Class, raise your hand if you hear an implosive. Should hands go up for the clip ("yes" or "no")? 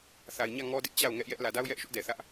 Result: no